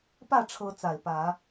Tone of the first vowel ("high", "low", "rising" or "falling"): falling